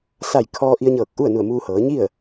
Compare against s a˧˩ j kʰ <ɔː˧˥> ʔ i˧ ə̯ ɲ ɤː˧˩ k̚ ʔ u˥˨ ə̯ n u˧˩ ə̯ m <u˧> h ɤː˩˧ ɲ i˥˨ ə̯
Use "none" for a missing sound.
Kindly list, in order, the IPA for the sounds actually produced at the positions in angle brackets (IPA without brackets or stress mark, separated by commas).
ɔː˧, uː˧